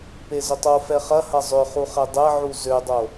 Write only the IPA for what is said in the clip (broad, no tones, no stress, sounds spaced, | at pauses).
p e z ʏ tˤ o f ɛ χ ɐ h ɐ zˤ ʏ χ u χ ɛ dˤ ɛ ʕ u z ø dˤ o